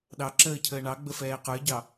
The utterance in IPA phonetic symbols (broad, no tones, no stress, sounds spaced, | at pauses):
ɗ ɑ ǁ əː cʰ əː ɳ ɑ ɡ͡b ə f ɛː q ə˞ ɟ ɑ